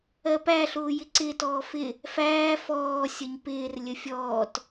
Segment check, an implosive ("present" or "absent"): absent